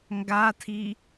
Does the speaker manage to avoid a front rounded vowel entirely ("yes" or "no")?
yes